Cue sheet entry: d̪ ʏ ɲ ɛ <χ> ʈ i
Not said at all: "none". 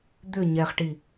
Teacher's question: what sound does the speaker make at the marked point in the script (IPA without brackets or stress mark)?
χ